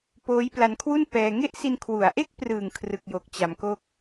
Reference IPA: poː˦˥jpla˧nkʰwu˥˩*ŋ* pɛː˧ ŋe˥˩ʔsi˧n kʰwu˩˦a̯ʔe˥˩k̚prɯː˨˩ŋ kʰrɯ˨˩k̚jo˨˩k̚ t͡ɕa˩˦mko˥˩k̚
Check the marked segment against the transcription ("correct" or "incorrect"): incorrect